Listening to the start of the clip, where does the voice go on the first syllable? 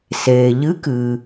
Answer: low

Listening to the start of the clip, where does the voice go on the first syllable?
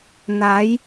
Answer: rising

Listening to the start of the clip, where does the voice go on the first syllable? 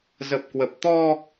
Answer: low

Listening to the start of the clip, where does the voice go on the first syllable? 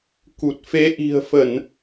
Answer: low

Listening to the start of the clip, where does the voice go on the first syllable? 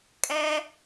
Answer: high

